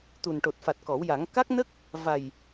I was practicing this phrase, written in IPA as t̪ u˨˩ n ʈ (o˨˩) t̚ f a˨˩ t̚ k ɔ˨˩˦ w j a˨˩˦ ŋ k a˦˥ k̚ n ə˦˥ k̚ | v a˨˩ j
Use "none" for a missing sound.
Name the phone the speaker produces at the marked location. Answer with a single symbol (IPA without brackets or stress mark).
o˨˩